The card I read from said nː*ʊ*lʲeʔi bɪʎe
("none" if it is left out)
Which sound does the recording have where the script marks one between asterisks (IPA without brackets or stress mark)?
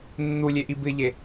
u